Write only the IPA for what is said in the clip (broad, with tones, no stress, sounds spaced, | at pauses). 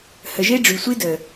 h ə˨ ʒ e˦ ɖ͡ʐ y˨ sʷ i˦ d ə˨